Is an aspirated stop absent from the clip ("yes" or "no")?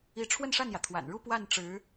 no